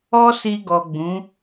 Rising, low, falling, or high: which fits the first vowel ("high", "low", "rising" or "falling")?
high